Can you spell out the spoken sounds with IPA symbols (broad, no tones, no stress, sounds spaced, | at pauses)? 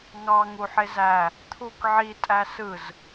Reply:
ŋ ɑ ŋ u ħ e z æ | t̪ʰ u k ʕ i tʼ æ s ɯ z